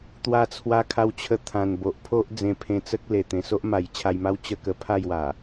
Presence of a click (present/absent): absent